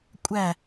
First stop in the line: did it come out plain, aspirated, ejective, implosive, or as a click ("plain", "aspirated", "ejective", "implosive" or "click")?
ejective